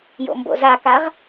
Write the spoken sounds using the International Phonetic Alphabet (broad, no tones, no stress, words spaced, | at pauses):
jo̰mbo̰zakaʁ